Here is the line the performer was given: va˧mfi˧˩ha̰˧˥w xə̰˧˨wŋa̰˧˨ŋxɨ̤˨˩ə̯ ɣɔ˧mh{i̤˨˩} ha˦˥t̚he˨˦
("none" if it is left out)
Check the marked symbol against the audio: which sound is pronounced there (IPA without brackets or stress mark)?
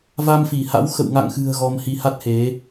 i˧